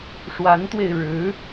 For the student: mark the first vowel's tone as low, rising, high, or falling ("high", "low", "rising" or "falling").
rising